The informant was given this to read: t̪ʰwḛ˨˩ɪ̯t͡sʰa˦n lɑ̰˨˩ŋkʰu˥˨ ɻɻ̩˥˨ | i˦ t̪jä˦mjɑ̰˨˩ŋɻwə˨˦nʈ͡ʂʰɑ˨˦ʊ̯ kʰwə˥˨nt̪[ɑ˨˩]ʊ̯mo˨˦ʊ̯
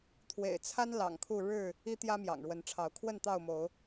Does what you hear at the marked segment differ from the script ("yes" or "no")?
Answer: yes